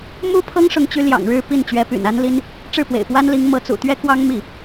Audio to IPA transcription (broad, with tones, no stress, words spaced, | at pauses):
mu˥pʰɤ˥ŋʂʊ˧˥ŋt͡ɕy˧˥ ljɑ̰˨˩ŋɻɻ̩˥˧ pi˥˩n t͡ɕɥɛ˧˥py̰˨˩na˥nli˥n | ʈ͡ʂɻ̩˥˩pwḛ˨˩ɪ̯pwa˥nli˧˥ŋ mɤ˧˥t͡sṵ˨˩ t̪ɥɛ˥kwɑ˥ŋmi˥˩